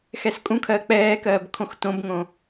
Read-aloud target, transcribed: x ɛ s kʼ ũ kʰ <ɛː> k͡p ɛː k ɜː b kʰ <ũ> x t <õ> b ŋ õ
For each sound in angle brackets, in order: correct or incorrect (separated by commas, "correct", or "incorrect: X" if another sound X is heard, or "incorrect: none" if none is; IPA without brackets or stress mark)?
incorrect: ɜː, incorrect: õ, correct